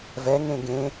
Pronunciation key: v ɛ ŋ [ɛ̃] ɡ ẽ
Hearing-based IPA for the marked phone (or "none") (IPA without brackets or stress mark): ẽ